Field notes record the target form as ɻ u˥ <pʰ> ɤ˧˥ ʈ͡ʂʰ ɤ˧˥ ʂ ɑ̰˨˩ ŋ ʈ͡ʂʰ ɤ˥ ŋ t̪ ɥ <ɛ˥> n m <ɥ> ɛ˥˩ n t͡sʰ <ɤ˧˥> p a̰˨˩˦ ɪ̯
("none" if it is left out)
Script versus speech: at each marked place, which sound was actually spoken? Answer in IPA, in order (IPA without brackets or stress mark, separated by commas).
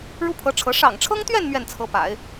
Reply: pʰ, ɛ˥˧, ɥ, ɤ˧˥